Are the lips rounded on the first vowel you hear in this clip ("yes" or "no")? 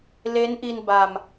no